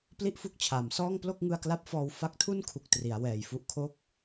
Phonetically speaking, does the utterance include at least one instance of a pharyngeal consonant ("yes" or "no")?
no